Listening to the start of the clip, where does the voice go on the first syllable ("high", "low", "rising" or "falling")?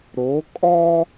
rising